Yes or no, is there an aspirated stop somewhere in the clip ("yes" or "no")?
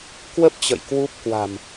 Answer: no